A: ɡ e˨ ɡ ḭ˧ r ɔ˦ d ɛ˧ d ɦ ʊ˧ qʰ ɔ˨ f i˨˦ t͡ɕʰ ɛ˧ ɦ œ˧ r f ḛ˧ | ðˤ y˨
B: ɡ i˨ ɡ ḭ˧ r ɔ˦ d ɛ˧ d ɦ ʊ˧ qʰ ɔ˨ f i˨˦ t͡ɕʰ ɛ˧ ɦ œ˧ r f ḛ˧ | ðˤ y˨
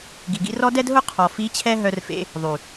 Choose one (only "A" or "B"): B